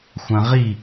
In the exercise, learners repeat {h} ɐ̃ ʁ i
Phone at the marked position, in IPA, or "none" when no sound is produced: xʷ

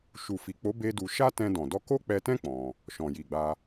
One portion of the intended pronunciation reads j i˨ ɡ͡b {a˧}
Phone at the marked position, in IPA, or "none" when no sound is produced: a˧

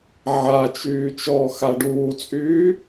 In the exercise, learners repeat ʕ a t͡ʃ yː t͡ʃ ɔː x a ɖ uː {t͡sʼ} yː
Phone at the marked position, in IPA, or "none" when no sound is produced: t͡sʼ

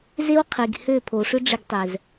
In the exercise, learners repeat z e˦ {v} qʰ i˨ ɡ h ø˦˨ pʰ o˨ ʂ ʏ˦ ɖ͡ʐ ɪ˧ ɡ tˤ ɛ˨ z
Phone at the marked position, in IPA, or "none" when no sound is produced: w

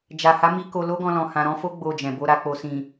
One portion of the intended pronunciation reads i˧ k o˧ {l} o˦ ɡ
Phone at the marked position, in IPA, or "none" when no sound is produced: l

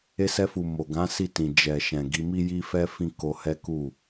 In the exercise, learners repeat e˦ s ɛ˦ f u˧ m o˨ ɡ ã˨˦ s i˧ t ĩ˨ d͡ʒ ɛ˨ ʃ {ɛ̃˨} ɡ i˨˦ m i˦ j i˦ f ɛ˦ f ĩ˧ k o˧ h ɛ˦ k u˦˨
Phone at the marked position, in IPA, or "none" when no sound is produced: ɛ̃˨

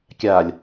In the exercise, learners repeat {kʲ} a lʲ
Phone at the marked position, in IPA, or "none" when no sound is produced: kʲ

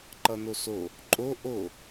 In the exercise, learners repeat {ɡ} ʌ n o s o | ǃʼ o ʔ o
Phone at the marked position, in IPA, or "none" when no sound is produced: ǃ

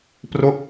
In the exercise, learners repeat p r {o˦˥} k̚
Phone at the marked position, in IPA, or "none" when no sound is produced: o˦˥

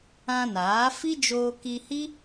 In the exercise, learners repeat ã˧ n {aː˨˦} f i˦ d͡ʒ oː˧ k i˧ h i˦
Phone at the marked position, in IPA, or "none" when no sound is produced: aː˨˦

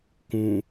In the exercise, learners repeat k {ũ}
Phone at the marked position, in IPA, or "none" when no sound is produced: ũ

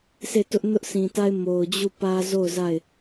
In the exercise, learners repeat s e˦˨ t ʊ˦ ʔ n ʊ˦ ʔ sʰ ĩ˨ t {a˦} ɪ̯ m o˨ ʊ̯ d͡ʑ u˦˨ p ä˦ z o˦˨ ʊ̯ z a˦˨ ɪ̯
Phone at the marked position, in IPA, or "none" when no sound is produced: a˦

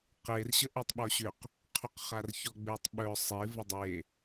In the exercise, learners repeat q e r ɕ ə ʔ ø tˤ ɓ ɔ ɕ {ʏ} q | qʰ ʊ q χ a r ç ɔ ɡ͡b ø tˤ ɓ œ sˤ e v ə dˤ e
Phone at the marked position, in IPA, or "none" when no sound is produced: ʏ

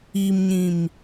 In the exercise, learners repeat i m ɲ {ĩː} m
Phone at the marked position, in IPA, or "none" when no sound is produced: ĩ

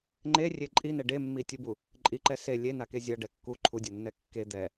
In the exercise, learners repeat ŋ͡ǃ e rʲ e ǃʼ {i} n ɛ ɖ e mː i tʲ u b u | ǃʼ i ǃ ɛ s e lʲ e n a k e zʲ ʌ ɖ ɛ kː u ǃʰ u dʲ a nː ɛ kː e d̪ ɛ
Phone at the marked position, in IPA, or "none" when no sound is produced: i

